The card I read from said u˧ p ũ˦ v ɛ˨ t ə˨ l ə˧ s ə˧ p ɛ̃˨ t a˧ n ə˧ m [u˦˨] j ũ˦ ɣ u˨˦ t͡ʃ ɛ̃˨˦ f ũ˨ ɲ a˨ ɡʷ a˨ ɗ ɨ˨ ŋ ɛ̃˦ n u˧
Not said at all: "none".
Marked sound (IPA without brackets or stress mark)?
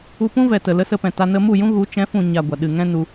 u˦˨